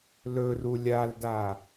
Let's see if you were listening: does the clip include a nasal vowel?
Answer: no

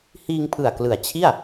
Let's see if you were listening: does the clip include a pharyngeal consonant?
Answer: no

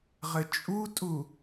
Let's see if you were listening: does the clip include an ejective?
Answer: yes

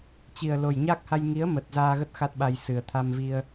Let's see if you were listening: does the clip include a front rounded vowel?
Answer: no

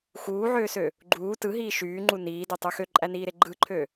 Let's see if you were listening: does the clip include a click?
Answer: yes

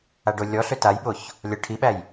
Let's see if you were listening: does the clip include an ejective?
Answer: no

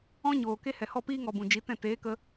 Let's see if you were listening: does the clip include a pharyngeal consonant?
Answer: no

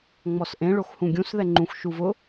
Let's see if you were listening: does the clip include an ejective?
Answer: no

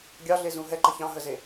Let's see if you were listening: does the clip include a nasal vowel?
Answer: yes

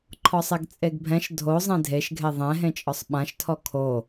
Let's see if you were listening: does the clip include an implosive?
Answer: yes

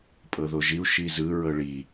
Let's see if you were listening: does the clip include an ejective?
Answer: yes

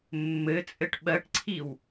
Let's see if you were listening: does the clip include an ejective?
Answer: yes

